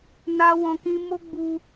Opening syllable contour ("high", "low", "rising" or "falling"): high